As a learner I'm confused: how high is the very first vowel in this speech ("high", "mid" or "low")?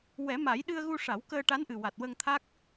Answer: mid